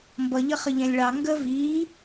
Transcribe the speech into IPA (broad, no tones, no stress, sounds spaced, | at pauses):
m b ʌ ʎ ə χ ə ʎ ɛ̃ lʲ ɭ ɑ ŋ ɡ ə v iː